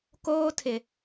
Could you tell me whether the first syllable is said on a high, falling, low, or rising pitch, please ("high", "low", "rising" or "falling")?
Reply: high